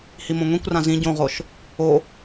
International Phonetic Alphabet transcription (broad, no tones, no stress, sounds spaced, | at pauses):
h i m õ ŋʷ ĩ kʷ r ã z ĩ ɟ õ ʁ o ʃ | o